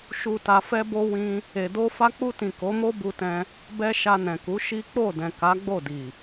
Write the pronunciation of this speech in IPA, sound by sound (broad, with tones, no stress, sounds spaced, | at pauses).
ʃ u˨ t a˨ f ɛ˧ b o˧ w ĩ˦ | e˨ d o˧ f a˧ k͡p u˧ t ĩ˨ k o˨˦ m o˦ b u˧ t ɛ̃˧ | b ɛ˧ ʃ a˧ n ɛ̃˨ k u˨˦ ʃ i˦ k͡p o˦˨ d ɛ̃˨ k a˨˦ ɡ͡b o˦˨ d i˨